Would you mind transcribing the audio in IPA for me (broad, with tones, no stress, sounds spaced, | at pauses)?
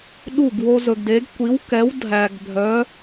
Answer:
ɗ u˥˩ ɡ w o˦ z ɵ˨ ɡ d e˨˥ ɡ kʷ i˨˥ w k ɛ˨˥ w dʱ æ˨ ɡ bʱ œ˨˥